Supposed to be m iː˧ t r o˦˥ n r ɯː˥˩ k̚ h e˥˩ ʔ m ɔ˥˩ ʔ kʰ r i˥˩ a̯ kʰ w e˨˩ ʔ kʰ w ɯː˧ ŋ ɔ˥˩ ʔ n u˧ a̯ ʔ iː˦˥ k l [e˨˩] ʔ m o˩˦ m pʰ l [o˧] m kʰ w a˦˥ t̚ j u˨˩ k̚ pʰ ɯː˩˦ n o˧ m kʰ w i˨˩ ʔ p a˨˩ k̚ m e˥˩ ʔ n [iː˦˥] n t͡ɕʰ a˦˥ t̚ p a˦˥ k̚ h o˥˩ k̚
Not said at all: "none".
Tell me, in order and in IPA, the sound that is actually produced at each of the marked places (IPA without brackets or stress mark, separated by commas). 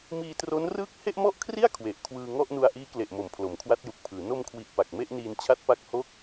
e˨˩, o˩˦, iː˧